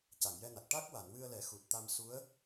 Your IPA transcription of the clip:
c a˨˩˨ ŋ j ɛ˧ n a˨˩ k̚ ʈ a˦˥ k̚ w a˨˩˨ n w ɨ˧ ə̯ l ɛ˨˩˦ x u˨˩ t̚ t̪ a˧ m s u˧˥ ə̯

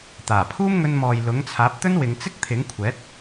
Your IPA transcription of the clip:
t̪ aː˨˩ pʰ uː˥ m ŋ ɵ˧ n m ɔː˨ j l ʊ˨˥ ŋ t͡sʰ aː˨˥ p̚ t̪ ɵ˥ n w ɪ˨˧ ŋ t͡s ɪ˥ k̚ t̪ʰ ɪ˨˥ ŋ kʷʰ ɛː˨˥ t̚

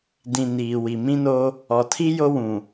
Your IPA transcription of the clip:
d ĩ˨ n iː˨ w i˨ m ĩ˦ n o˦ | ɔ˨ tʰ i˦ j o˦ w ũ˨

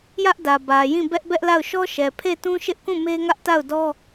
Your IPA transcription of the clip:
j ä˦ ʔ d ä˨ b ä˨ j ĩ˦˨ b ɛ˦ ʔ b ɛ˦ ʔ l a˦˨ ʊ̯ ʃ ɔ˦ ʃ ɛ˨ pʰ e˦˨ t ũ˦ ʃ ɪ˦ ʔ k ũ˦˨ m e˦ ŋ ä˦ ʔ t a˦˨ ʊ̯ d ɔ˦

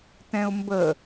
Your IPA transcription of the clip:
t ɛ̃ ʊ̯ m b ə

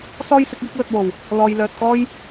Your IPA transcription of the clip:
s ɔː˥ j s ɪ˨˥ k̚ j ɪ˥ k̚ l ɵ˧ t̚ w o˨˩ w | l ɔː˨ j l œː˨ t̚ k ɔː˥ j

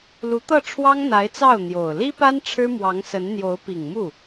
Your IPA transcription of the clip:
l u˧˥ t̪ ɤ˥˩ ʈ͡ʂʰ w ɑ˥ ŋ n̪ a˧˥ ɪ̯ t͡s ɑ˥˩ ʊ̯ n̪ j o˨˩ ʊ̯ l i˥ p a˥ n ʈ͡ʂʰ ɻ̩˥ m w ɑ˧˥ ŋ s ə˧˥ n n̪ j o˧˥ ʊ̯ p i˨˩ ŋ m u˥˩

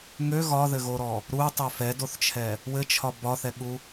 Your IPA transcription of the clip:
ŋ ø ɣ ɒ ð ɘ ɣ o ɾ ɔ | ɾ u tˤ ø f ɛ d o θ t͡ʃʰ ɛ | w ɘ t͡ʃʰ ɒ b ɒ θ ɛ ɠ u

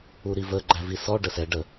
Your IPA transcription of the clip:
u ɾ i v ə ɡ͡ǃ æ v i s ɔ ɖ ə s ɛ ɖ ə

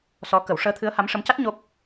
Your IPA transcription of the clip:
s ɔ˧˥ k ə˨˩˦ w ʂ əː˧˥ t̪ʰ ɨ˧˥ ə̯ h a˧˥ m ʂ ə˧˥ m c a˦˥ t̚ ɲ o˦˥ p̚

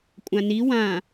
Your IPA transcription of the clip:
kʷʼ ã n i w ã

